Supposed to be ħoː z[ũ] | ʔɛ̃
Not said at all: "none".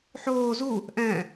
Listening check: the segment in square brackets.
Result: u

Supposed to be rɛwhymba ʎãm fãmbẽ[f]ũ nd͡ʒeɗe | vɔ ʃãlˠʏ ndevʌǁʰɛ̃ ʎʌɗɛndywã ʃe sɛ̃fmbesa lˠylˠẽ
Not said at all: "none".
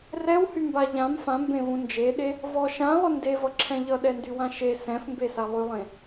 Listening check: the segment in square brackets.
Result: v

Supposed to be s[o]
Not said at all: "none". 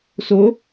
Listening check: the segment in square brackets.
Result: o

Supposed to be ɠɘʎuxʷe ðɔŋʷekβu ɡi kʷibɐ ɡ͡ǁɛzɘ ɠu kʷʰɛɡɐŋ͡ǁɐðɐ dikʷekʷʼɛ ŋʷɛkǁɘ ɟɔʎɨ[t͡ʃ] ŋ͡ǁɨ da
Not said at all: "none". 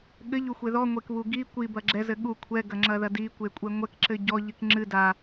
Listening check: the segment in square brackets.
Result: k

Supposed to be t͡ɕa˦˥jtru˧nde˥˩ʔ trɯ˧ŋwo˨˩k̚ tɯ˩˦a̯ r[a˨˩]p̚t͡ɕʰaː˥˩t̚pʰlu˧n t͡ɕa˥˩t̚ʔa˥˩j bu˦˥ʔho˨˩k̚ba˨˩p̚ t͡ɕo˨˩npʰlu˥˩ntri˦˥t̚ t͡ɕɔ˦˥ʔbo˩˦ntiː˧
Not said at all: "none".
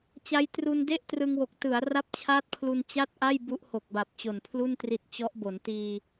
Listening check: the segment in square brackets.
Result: a˥˩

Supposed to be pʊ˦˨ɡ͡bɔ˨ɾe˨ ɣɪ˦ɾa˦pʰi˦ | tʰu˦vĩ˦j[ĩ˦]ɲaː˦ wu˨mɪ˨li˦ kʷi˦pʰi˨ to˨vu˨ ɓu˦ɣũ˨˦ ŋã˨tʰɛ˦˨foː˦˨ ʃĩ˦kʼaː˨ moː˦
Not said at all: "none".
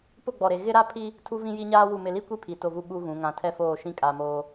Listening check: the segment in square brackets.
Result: i˦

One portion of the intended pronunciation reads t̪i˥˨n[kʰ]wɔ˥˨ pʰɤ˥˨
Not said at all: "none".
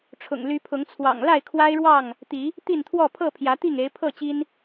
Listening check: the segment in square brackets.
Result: t̪ʰ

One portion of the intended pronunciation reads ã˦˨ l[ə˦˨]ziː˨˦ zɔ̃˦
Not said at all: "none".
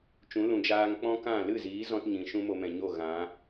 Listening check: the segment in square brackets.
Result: ɨ˦˨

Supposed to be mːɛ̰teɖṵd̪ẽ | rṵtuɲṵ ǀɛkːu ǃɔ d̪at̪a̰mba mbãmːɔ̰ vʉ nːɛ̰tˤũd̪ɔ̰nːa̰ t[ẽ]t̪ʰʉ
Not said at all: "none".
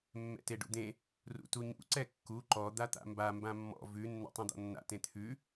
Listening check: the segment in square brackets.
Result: ẽ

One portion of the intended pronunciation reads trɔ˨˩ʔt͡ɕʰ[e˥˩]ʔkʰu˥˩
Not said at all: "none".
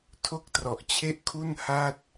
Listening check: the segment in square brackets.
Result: e˥˩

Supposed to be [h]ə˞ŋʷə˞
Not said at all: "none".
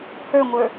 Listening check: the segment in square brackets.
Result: h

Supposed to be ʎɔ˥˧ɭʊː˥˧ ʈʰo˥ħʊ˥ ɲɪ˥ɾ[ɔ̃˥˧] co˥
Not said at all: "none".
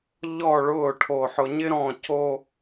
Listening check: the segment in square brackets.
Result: ɔ̃˥˧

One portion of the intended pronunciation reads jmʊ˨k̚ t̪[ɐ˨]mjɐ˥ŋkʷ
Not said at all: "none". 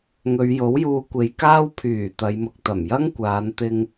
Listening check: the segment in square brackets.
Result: ɐ˨˩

